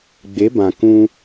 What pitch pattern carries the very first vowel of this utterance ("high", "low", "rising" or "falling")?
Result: rising